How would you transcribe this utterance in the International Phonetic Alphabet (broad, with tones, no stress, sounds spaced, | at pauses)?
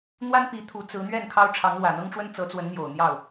n̪ w a˥ n p i˧˥ t̪ʰ u˧˥ t͡s ɹ̩˧˥ n̪ ɥ ɛ˥˩ n kʰ ɑ˥ ʊ̯ ʈ͡ʂʰ ɑ˧˥ ŋ l w ä˨˩ n̪ ɤ˥ ŋ ʈ͡ʂ w ə˥ n t͡s ɤ˧˥ t͡s w ə˧˥ n n̪ j o˨˩ ʊ̯ n̪ j ɑ˥˩ ʊ̯